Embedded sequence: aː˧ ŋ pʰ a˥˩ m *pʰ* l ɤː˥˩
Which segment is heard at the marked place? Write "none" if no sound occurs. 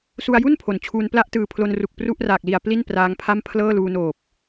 pʰ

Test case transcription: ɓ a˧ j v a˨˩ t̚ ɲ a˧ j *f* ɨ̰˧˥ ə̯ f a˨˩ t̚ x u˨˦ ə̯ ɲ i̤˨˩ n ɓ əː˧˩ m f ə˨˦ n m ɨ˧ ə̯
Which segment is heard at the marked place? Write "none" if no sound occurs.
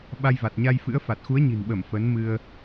f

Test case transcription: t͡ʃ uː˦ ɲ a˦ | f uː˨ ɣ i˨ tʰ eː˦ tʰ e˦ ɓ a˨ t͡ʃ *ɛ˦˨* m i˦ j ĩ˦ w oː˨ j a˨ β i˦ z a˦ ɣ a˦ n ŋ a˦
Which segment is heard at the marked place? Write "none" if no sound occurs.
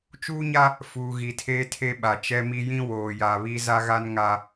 ɛ˦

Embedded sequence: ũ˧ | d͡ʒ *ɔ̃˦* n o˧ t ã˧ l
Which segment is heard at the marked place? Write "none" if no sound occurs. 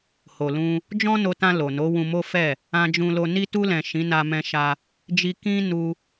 ɔ̃˦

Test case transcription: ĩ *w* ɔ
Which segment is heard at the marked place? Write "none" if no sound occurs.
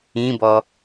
b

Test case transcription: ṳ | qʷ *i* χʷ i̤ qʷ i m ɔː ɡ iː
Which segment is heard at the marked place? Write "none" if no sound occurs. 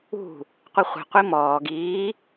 i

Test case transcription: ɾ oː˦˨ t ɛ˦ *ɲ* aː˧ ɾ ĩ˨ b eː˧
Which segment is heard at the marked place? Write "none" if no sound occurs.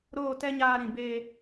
ɲ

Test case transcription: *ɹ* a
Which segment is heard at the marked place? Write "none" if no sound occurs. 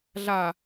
ɮ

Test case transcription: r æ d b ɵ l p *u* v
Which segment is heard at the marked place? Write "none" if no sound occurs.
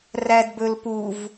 u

